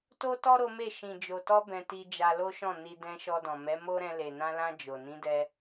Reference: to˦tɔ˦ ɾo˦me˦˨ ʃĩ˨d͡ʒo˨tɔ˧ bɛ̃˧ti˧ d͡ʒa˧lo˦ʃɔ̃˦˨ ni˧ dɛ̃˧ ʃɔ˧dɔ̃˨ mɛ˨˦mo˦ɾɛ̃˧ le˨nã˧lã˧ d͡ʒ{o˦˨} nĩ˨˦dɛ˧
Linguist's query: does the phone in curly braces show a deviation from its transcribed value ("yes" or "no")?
yes